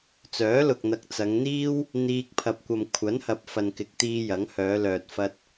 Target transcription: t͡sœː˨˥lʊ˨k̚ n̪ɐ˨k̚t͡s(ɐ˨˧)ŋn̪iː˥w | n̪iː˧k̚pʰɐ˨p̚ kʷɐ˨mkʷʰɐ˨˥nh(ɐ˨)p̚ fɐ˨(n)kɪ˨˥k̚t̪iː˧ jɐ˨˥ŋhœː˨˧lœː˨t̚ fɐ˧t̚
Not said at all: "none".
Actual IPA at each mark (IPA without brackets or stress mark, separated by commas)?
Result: ɐ˨˧, ɐ˨, n